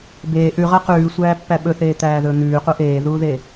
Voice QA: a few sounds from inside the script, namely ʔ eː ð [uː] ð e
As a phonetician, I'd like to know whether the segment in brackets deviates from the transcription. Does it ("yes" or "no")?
no